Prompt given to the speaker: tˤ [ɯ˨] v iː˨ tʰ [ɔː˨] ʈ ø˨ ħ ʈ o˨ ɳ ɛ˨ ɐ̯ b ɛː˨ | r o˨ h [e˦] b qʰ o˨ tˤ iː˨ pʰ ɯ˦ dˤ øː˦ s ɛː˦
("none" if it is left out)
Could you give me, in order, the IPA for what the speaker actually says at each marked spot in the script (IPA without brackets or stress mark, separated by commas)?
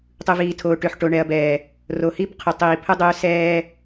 ɯ˨, oː˨, i˦